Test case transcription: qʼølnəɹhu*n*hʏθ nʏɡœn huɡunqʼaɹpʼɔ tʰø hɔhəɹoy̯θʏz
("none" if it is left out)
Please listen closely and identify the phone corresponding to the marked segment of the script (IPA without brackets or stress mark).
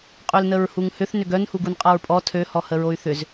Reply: ŋ